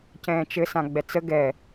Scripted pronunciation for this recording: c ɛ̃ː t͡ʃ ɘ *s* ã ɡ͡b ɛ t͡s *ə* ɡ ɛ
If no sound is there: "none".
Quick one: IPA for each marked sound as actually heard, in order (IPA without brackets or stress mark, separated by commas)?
s, ə